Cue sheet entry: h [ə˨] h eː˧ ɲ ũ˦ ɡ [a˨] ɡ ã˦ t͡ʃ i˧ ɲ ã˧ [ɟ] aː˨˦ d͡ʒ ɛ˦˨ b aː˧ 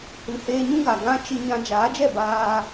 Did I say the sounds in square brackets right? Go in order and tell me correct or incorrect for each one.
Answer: incorrect: ɨ˨, correct, incorrect: d͡ʒ

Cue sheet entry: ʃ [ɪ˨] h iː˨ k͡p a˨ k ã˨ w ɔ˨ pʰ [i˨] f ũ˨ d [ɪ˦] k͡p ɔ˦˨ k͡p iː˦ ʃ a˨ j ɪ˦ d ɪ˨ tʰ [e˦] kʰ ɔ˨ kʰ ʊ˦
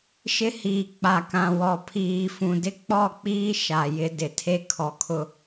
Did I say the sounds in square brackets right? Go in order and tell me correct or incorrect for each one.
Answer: incorrect: ɪ˦, incorrect: iː˨, correct, correct

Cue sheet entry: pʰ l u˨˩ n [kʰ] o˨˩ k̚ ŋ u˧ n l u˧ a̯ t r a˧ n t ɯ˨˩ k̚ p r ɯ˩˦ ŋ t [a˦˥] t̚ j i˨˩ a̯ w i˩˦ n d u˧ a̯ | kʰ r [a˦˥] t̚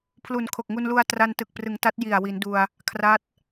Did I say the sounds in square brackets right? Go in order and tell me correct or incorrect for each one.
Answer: correct, correct, correct

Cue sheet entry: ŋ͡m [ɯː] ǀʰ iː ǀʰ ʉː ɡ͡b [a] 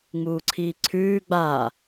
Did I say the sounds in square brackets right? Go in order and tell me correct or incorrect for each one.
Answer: incorrect: uː, correct

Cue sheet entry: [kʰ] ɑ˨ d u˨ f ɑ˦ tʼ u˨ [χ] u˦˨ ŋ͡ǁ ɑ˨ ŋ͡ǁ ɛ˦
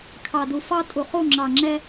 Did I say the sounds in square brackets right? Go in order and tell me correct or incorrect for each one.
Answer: correct, correct

